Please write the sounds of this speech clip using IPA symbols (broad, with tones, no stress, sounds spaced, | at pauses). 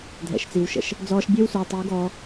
dʱ ɛ̰˨ ʃ t͡s i˨ w ʃ ə̰˨ ʃ | d͡z ɔː˧ ʃ bʲ e˦ w s ʉ˨ w tˤ i˨˦ w ɡ ɔː˧